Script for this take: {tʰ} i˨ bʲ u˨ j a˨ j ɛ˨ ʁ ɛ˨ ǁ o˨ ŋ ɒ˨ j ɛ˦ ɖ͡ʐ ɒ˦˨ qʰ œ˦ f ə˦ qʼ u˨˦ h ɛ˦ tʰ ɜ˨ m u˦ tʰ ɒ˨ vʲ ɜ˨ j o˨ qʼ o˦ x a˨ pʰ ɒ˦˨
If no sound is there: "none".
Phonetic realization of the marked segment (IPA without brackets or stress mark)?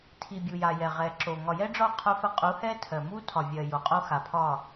tʰ